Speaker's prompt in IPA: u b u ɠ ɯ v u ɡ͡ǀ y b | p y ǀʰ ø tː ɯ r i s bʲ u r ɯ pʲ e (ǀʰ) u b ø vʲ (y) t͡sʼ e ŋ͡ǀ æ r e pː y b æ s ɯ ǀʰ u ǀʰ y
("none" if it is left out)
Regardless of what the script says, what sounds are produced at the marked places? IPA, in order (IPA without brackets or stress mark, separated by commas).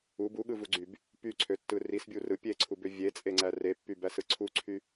ǀʰ, e